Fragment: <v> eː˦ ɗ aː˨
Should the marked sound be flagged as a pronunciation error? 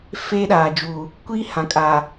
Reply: yes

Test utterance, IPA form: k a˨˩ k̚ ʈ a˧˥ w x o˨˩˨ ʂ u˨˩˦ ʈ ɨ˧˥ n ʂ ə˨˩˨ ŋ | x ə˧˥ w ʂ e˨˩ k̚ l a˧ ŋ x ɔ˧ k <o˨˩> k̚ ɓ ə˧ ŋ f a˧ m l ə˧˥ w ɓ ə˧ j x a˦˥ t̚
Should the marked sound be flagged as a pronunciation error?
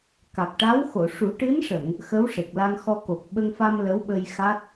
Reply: no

